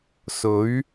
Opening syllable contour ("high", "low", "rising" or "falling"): rising